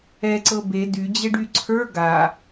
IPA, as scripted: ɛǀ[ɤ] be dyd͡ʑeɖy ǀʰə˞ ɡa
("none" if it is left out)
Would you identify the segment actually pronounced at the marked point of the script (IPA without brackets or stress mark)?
ɤ